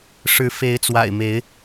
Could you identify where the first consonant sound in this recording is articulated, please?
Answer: retroflex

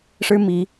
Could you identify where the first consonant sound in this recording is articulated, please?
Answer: retroflex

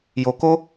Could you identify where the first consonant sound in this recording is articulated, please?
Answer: palatal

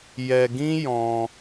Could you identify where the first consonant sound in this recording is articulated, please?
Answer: palatal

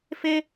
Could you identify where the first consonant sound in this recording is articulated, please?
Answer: labial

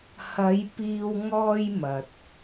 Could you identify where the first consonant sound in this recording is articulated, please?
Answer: glottal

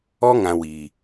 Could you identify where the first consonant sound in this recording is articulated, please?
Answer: velar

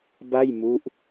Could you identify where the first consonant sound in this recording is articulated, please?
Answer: labial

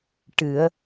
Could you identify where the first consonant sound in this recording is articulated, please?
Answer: retroflex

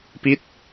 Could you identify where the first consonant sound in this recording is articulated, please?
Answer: labial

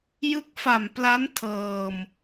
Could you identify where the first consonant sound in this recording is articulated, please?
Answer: palatal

